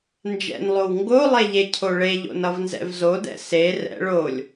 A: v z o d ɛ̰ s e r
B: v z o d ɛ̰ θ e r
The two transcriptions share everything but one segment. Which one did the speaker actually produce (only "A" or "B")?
A